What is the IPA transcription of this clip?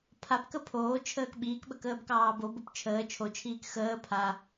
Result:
pʰapkə pʰoːt͡ʃʰəːk ɓiːkɓəkəːbkɑː bobop t͡ʃʰəː t͡ʃʰot͡ʃʰiːk xəː pʰa

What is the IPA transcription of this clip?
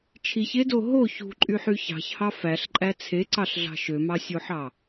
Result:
t͡ʃʰiçedo ɦo çṳǃʼyħy çɑ̤çhɑ fæɬǃʼæ t͡sʰeǀɑɬɮɑ̤ ʃømɑsʲoħɑ

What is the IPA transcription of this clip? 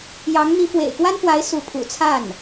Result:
jɑ˧˥ŋ n̪i˧˥fwḛ˨˩ɪ̯kwa˥nfwa˧˥ɪ̯ su˧˥pʰṵ˨˩t͡sʰa˥˩n

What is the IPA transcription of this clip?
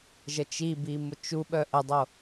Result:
ʒət͡ʃibi mʊt͡ʃuɓœ ʔədˤo

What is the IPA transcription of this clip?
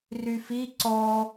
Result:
ryfi ǀɔ

